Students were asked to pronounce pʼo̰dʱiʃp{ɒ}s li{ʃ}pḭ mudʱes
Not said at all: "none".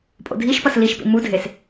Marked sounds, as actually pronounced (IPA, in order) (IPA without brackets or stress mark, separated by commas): ʌ, ʃ